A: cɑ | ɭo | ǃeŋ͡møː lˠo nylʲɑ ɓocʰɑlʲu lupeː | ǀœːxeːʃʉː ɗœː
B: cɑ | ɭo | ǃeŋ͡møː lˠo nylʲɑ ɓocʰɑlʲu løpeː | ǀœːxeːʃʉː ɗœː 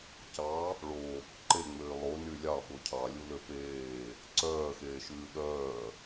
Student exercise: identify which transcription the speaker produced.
B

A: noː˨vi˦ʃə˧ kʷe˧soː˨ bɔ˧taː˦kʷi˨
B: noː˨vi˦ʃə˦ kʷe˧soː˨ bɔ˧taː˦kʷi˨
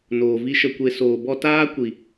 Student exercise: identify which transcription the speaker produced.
A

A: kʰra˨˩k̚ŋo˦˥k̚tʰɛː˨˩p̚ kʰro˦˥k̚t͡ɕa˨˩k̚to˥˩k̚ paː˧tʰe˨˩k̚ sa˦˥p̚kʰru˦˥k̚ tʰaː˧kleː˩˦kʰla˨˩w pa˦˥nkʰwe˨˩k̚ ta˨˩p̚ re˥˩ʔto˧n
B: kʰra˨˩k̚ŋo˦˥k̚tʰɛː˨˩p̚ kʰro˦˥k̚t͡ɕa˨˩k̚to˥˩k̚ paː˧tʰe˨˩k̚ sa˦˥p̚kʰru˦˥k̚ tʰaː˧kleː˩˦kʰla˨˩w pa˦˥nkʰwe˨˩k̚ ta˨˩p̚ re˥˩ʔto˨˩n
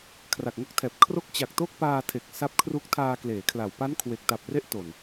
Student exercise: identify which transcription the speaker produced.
B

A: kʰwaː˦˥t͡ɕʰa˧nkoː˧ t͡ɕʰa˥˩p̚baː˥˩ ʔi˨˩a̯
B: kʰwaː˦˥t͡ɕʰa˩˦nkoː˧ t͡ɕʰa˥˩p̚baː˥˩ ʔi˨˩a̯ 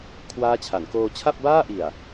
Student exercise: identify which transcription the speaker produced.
B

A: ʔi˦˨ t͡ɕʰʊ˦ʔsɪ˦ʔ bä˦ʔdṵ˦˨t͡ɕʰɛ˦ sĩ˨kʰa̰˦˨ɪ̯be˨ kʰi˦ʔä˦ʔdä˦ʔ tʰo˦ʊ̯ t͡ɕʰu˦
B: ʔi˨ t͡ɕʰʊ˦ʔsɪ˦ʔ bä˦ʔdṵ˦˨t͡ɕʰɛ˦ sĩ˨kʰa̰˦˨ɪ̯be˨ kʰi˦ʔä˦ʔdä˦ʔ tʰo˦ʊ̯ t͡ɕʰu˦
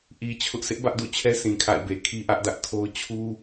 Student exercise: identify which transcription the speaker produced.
B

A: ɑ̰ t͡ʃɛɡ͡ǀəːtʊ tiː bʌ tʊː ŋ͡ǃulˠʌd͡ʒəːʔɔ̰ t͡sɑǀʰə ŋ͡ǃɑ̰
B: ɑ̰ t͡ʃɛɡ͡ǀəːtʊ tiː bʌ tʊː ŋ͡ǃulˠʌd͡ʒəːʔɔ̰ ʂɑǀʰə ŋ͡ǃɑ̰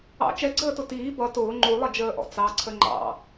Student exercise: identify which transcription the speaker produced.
A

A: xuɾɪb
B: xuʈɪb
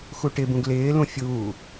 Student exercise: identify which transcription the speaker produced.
B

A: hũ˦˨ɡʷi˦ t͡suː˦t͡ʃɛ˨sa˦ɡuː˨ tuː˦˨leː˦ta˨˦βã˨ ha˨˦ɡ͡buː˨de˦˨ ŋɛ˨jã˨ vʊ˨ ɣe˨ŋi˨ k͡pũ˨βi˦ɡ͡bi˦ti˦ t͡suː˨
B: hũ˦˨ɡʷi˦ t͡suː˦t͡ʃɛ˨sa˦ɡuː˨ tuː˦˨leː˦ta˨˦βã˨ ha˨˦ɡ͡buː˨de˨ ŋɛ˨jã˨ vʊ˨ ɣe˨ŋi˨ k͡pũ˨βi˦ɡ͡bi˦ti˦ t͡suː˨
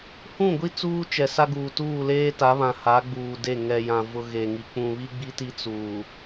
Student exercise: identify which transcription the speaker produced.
A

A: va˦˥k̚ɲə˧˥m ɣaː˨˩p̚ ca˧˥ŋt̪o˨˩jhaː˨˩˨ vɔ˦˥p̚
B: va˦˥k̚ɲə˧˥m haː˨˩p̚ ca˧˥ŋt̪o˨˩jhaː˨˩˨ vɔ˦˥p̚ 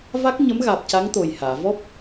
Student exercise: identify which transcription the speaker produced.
A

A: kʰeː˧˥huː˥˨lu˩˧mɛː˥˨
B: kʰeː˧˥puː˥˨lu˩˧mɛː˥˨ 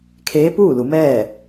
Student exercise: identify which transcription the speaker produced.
B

